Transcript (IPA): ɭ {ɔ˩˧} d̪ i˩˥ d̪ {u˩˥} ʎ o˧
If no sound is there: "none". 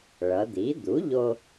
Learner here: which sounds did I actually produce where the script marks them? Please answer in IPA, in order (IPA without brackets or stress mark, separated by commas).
ʌ˩˧, u˩˥